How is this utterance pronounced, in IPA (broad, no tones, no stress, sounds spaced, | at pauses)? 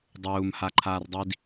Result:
dˤ uː m h a ǃʰ aː r dˤ i d